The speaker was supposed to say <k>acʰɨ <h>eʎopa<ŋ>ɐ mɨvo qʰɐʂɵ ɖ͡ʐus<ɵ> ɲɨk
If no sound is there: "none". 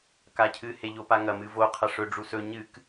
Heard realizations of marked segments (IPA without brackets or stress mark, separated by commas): k, h, ŋ, ɵ